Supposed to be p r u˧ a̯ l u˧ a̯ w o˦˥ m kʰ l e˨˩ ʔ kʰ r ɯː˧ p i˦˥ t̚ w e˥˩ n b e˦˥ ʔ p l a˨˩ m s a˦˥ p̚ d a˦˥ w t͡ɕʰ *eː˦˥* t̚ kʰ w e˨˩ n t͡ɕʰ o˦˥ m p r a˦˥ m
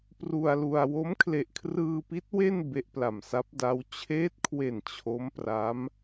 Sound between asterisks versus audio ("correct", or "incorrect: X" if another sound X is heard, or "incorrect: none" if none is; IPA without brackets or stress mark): correct